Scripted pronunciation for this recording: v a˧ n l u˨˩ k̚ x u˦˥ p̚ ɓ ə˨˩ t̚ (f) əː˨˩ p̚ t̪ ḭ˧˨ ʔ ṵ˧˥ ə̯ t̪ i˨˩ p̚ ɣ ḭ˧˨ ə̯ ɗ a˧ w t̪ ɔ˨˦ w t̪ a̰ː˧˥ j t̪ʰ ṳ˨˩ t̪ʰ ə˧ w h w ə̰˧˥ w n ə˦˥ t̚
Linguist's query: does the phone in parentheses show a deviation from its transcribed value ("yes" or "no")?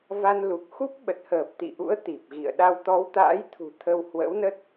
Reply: yes